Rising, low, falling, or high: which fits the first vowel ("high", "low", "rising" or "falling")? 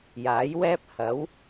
rising